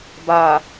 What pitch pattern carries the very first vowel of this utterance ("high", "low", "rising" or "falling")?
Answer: low